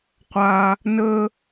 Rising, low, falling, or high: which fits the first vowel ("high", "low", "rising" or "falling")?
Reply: high